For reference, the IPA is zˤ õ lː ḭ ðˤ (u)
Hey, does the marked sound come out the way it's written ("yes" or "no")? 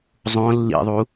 yes